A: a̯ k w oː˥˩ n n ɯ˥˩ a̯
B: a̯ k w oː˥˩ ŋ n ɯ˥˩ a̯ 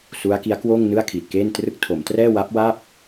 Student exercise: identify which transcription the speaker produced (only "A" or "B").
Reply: B